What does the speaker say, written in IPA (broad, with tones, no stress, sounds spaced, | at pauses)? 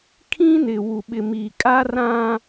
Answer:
kʰ ĩ˦ n ɪ˨ w u˨ ɓ ɪ˨ m i˨ kʼ a˦ r ã˦